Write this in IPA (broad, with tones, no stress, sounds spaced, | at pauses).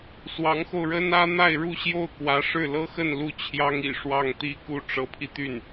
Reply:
s w ɑ˧˥ ŋ x o˧ ʊ̯ ɻ ə˥ n ä˥ n̪ a˥˧ ɪ̯ ɻ u˥˧ ɕ j o˥˩ ʊ̯ k w ä˧˥ ʂ ɻ̩˥˩ l ɤ˥ x ə˥˧ n l u˥˩ t͡ɕʰ j ɑ˥ ŋ ḭ˨˩ ʂ w ɑ˥˩ ŋ t̪ i˥ k u˥˩ ʈ͡ʂ ɤ˧˥ pʰ i˧ t̪ y˥˩ n